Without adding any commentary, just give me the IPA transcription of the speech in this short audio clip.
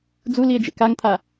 d͡z u l i e̯ d͡ʒ ḛ k a ŋ t̪ʰ a

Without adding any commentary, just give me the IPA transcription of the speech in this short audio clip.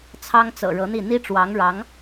t͡sʰ ɑ˥ ŋ t͡s ɤ̰˨˩ ɻ ɤ˧˥ n̪ i˥˩ n̪ i˥ ʈ͡ʂ w ɑ˧˥ ŋ ɻ ɑ˧˥ ŋ

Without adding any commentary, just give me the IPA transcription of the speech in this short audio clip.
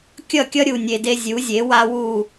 kʲ ʌ˥˩ kʲ ʌ˥ ɾʲ u˩ nʲ e˩ d e˧ zʲ u˩˥ zʲ e˩˥ w a˥ w u˥˩

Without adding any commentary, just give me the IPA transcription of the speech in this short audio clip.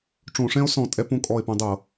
ʈ͡ʂ õ˧˩˧ ʂ ɛ̃˥ o̯ s ɔ̃˧˩˧ tʼ ɛ˧˩˧ p õ˧˩ kʼ ɔ˧˩ e̯ p õ˧ dˤ ɤ˧˩˧

